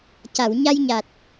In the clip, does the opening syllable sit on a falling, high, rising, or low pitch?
low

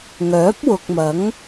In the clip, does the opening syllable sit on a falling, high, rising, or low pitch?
rising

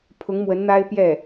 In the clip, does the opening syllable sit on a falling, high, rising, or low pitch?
rising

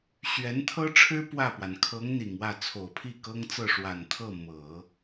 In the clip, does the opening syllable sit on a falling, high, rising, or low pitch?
rising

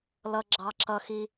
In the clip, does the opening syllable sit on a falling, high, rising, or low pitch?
high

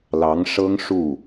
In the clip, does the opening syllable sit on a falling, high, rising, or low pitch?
rising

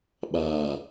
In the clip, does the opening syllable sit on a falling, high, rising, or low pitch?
low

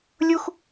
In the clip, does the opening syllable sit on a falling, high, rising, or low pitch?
high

